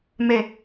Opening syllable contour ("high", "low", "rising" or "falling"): falling